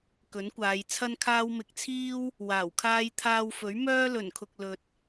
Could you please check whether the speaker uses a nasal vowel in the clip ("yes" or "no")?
no